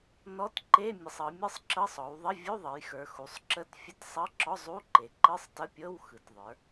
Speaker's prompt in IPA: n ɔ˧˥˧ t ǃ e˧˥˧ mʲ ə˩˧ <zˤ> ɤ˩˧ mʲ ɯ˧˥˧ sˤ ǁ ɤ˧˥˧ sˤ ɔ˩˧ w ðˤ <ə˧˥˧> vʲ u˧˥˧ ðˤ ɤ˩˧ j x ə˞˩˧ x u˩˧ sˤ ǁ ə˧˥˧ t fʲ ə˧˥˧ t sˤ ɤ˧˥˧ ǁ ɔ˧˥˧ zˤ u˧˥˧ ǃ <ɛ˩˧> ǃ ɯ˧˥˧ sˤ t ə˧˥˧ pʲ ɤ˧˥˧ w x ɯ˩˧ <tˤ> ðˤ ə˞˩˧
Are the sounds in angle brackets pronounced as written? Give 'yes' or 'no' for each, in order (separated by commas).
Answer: no, yes, no, no